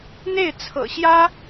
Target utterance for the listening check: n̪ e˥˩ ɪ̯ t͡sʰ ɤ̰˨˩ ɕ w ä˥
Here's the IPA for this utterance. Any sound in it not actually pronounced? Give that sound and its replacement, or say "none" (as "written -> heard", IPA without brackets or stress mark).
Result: w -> j